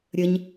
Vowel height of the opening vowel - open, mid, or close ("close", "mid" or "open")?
mid